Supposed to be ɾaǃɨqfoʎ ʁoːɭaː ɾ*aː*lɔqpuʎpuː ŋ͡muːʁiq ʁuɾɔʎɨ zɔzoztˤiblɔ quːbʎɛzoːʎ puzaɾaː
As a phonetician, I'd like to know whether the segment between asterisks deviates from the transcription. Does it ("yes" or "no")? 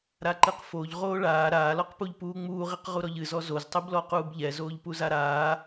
no